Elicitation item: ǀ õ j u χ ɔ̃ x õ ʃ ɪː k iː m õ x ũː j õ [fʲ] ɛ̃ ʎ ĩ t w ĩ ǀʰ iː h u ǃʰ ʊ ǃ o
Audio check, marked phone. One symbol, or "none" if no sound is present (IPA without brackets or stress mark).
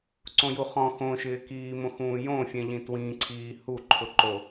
fʲ